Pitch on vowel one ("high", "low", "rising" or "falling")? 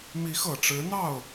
rising